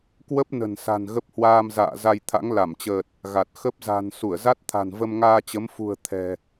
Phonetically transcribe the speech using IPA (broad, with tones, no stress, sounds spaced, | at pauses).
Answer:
k w ə˦˥ p̚ n ə̤˨˩ n s a̤˨˩ n ɣ ə˦˥ p̚ h w aː˧ m z a̰ː˧˨ z a˧ j t̪ʰ a̰˧˥ ŋ l a˧˩ m t͡ɕ əː˨˩ t̚ | ɣ a˨˩ t̚ x ə˦˥ p̚ z a̤˨˩ n s u˧˩ ə̯ z a˦˥ t̚ t̪ʰ a̤˨˩ n v ə˧ m ŋ aː˧ t͡ɕ ə˨˦ m f ṳ˨˩ ə̯ t̪ʰ ɛ̤˨˩